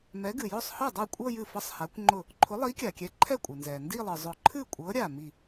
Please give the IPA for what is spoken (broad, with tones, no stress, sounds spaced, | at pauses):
m ɛ˨˥ ɡ ɨ˩ j ʊ˥˩ sˤ h ɤ˥˩ dˤ a˥˩ kʷʼ ɤ˥˧ j ɨ˥˩ f ɤ˥˧ sˤ h a˨˥ kʷ ŋ͡ǃ ʊ˥˩ | ǃʰ ʊ˨˥ lˠ i˨˥ kʲ a˩ kʲ ɛ˨˥ ǃʰ ɛ˥˩ kʷʼ ɨ˩ n z ɛ˩ n d i˥˧ lˠ ɨ˩ zˤ ʊ˨˩˦ ǃʰ ɨ˥˩ kʷʼ ɤ˨˥ ɾʲ a˧˩ m i˧˩